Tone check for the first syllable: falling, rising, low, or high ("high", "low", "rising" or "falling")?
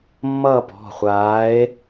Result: falling